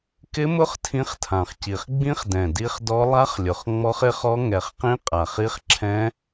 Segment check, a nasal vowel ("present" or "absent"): present